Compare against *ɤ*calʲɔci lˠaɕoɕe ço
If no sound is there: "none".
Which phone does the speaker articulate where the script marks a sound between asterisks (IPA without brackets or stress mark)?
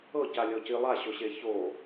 ɤ